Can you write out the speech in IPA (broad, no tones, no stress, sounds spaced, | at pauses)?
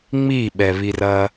ŋ͡m i ɓ ɛ β i r ɐ